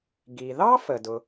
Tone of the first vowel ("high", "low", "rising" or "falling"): low